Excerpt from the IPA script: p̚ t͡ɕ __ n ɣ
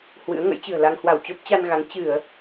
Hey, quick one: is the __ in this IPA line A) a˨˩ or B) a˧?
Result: B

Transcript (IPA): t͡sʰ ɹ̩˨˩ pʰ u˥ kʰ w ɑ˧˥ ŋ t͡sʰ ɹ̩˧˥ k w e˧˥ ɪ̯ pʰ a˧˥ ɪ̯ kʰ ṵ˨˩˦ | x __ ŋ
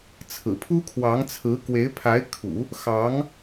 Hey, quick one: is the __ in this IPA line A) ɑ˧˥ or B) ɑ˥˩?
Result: A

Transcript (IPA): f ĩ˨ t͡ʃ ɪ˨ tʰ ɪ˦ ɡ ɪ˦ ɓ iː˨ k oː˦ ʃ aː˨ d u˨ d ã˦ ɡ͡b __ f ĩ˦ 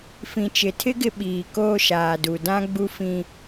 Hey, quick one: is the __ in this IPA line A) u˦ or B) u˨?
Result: A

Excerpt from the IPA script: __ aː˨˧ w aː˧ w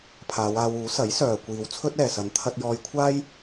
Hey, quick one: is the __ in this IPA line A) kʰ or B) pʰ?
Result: B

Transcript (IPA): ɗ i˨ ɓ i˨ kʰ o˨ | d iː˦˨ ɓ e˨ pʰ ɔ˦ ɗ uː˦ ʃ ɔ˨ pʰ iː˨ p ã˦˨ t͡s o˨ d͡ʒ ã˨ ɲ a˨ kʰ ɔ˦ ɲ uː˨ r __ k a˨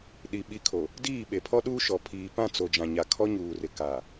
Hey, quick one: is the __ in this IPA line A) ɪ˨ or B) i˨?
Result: A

